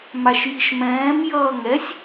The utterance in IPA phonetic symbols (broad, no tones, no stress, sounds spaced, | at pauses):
m a ʃ j i ʃ m ɛ̃ː m j ʌː ŋ ɛ sʲ